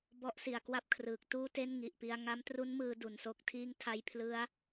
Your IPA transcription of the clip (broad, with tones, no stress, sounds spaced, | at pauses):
b ɔ˦˥ ʔ s i˨˩ a̯ k w a˥˩ p̚ kʰ r ɯː˨˩ k̚ t uː˥˩ t e˥˩ n ŋ i˨˩ ʔ p i˧ a̯ ŋ a˦˥ m t r u˦˥ n m ɯː˧ d u˨˩ n s o˥˩ k̚ tʰ iː˥˩ ŋ tʰ a˦˥ j pʰ l ɯ˦˥ a̯